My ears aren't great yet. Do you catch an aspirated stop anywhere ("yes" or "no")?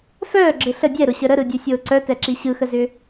no